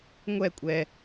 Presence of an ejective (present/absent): present